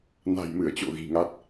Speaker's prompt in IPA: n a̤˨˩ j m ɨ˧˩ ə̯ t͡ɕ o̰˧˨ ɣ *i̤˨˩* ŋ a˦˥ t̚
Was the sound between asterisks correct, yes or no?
yes